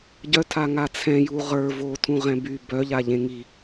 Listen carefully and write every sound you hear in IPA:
ɟœtʰa ŋat͡sʰɛ̃ ju ʁə˞ votʰũ ʁɛ̃by bœ ʎaʎẽŋi

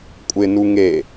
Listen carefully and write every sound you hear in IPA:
kʷʼɪnu ŋe

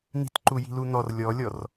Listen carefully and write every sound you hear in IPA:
n̪i̤tǃuji̤lu n̪ɔr lʲɔlʲɔr

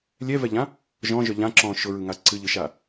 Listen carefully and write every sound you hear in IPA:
lʲɛvɛʎã | ʒɔ̃ʒœ ʎãǁɔ̃ː ʃʊɹɯŋa ǀɨʎɯʃa

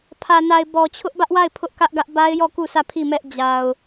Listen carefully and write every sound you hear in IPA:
pʰä˨na˨ɪ̯ bɔ˨t͡ɕʰʊ˦ʔbä˦ʔwa˦˨ɪ̯ pʰʊ˦ʔkä˦ʔɡä˦ʔ ba˦ɪ̯jɔ˦˨ ku˦˨sä˦˨ pʰi˦˨mɛ˦ʔ d͡ʑa˨ʊ̯

